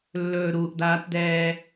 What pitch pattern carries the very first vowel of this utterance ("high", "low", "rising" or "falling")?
low